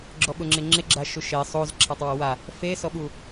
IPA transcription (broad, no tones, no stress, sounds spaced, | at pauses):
ɡ͡ǁ ɔ ɓ ʊ ŋ͡ǁ ɪ ŋ͡ǁ ɪ ɡ͡ǁ a ʃ u ʃ e sˤ o z ǁʰ a tˤ w ɔ w a | f e s ɔ ɓ u